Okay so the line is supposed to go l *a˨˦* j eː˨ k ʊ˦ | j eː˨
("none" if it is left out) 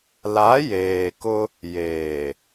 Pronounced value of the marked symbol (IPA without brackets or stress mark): a˨˦